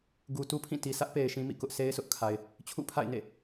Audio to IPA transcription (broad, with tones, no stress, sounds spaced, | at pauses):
ɡ u˨ t u˦ pʰ ĩ˦˨ t i˨ s ä˦ ʔ p e˨ ɪ̯ ʃ ĩ˦ m ḭ˦˨ k ʊ˦ ʔ sʰ e˦ ɪ̯ sʰ ʊ˦ ʔ kʰ a˨ ɪ̯ | t͡ɕʰ ṵ˦˨ pʰ a̰˦˨ ɪ̯ n ḛ˦˨